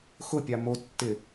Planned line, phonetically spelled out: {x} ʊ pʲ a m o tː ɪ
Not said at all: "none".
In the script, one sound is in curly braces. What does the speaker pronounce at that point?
x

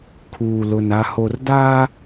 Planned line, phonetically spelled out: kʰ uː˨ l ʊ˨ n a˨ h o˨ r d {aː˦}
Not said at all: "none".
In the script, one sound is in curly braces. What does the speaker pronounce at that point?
aː˦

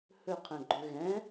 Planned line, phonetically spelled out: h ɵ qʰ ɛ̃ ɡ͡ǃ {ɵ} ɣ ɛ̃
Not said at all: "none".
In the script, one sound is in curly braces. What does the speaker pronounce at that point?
ɵ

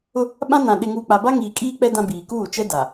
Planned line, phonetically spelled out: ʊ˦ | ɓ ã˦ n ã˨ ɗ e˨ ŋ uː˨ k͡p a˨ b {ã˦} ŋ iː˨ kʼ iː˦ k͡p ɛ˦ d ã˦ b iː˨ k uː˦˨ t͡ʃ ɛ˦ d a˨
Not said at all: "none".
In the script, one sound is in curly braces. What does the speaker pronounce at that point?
a˦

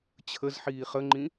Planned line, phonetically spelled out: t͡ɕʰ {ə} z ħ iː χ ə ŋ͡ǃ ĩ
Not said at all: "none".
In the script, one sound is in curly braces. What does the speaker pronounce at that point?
ə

